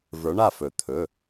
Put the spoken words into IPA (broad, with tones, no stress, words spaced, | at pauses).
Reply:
və˞˨˥ɳa˥˩fɵ˨˩˦ t̪ʰɵ˩˧˩